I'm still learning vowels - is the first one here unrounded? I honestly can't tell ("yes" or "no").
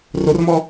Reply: no